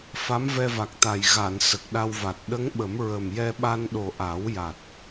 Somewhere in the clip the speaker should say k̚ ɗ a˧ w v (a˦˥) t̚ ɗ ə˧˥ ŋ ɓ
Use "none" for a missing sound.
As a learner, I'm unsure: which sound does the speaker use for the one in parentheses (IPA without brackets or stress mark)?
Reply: a˨˩